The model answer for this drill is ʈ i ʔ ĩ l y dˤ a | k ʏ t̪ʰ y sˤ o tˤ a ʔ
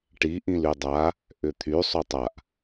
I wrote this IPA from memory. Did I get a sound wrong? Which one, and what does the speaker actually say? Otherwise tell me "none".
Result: k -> ʔ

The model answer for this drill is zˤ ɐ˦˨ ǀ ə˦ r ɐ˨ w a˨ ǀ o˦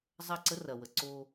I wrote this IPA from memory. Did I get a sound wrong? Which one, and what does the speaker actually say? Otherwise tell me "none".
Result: a˨ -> ə˨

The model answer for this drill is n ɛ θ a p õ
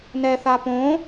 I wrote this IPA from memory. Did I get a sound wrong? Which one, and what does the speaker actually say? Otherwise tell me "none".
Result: none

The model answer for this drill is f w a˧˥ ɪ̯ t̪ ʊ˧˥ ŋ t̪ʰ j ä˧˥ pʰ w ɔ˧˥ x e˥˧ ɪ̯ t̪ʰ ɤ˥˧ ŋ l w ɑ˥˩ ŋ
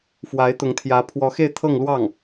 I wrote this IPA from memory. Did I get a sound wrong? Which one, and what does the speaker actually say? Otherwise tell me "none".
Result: none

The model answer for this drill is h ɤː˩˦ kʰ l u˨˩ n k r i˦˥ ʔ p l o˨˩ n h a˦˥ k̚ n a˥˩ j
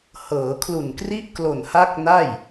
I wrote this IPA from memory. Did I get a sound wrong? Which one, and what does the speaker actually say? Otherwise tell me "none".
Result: p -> k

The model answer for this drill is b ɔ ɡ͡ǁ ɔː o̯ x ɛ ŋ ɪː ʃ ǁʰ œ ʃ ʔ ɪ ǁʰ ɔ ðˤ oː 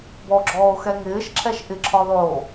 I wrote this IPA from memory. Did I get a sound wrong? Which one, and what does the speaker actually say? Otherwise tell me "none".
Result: œ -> ɛ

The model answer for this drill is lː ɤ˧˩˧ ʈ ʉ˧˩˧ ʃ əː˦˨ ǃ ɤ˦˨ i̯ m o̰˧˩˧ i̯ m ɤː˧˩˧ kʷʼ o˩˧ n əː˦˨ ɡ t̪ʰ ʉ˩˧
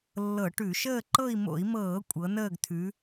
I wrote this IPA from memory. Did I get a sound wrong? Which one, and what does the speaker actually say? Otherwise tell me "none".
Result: o˩˧ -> ɤ˩˧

